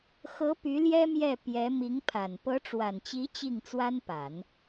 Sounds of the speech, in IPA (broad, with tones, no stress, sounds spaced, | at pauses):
x ɤ˧˥ p y˧˥ l j ɛ˥ m j ɛ˥˩ p j ɛ˧˥ m i˧˥ ŋ pʰ a˨˩ n p ɤ˧˥ ʈ͡ʂ w a˨˩ n t͡ɕ i˧˥ t͡ɕ i˥˩ ŋ t͡s w a˥ n p a˨˩˦ n